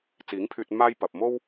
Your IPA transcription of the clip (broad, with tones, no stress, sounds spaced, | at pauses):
t͡s iː˨˥ ŋ pʰ yː˧ t̚ m aː˥ j p ɐ˨ p̚ m o˥ w